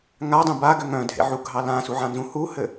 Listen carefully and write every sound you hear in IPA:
ŋ a dˤ ũ b a ɡ ʏ ŋ œ̃ dʱ ḛ ʕ u ɡʱ ɑ l ã s u ʕ ã n z ũ h u h ɘ

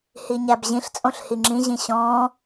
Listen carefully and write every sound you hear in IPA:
h i ɲ æ b ʑ ĩ ɬ t͡sʼ õ ɬ h i ŋ͡ǁ ĩ ʑ ĩ ɕ ɔ̃ː

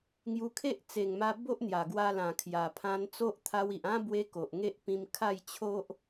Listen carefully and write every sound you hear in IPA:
ŋ j u˧ kʰ e˦ ʔ t͡s e˨˩ ŋ m a˧ b o˦ ʔ n̪ j a˨˩ ɡ w a˧ l ã˨˩ kʰ j a˨˩ pʰ ã˧ n t͡s o˦ ʔ t̪ʰ a˧ w i˨ ʔ ã˦ b w e˦ k o˨ ʔ ŋ e˦ ʔ p ĩ˧ m kʰ a˥˧ j t͡ɕʰ o˦ ʔ

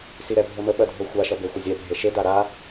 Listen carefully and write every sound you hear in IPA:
s i ɾ ɛ bʱ ə m ə ɓ ɐ dʱ o xʷ a ʃ ɐ b e xʷ ə zʲ ɛ bʱ e ʃ e d a ɾ a

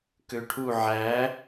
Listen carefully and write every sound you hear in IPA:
k ø ʈʰ u ʕ æ

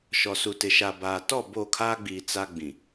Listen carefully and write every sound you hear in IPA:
ʃ ɔ˨ s u˨ t ɪ˨ ʃ a˨ b aː˨ t ɔ˦˨ b o˦˨ kʰ aː˦ ɡ͡b iː˨ t͡s a˦ ɡ͡b ĩ˨

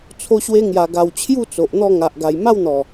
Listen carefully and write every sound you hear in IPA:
t͡sʰ o˧ ɕ w e˧ ŋ j a˨˩ ɡ a˨˩ w t͡ɕʰ j u˥˧ t͡s o˨ ʔ n̪ ɔ˥˧ ŋ a˨ ʔ ɡ a˨˩ j m a˥˧ w n̪ ɔ˨˩

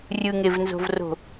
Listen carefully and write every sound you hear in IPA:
rʲ ɯ ŋ e v n z o̤ v r o̤

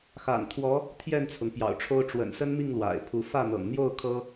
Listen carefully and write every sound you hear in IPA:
x a̰˨˩ n t̪ʰ w ɔ˧˥ | t̪ʰ j ɛ˥˩ n t͡sʰ ʊ˩ ŋ p j ɑ̰˨˩ ʊ̯ ʈ͡ʂʰ o˥ ʊ̯ ʈ͡ʂ w ə̰˨˩ n s ə˥ n m i˥˩ ŋ l w a̰˨˩ ɪ̯ pʰ u˧˥ f ä˥˩ n̪ ɤ̰˨˩ ŋ n̪ j o˥˩ ʊ̯ kʰ ɤ˥

